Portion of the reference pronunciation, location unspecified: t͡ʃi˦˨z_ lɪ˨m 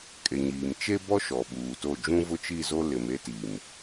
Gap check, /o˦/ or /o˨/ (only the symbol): o˦